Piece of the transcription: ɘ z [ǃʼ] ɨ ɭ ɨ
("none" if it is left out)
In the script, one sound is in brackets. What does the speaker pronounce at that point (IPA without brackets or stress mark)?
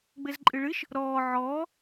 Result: ǃʼ